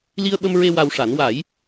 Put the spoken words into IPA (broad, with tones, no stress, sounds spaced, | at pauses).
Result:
l i˧ ə̯ ɓ ə˧ m ɹ e˧ w a˧ w ʂ a˨˩˦ n w a˨˩˦ j